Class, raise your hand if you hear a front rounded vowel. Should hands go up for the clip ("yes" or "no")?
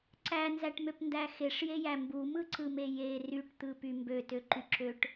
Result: yes